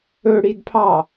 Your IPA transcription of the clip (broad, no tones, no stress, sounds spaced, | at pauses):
ɵ ɽ i d pʰ ɑ